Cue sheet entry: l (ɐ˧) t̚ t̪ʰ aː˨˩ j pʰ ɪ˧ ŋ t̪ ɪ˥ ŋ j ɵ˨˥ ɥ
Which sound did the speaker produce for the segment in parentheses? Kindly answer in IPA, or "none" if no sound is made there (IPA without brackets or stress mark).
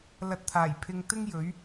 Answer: ɐ˧